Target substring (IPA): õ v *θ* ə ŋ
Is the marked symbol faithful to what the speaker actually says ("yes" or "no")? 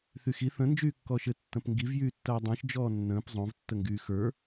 no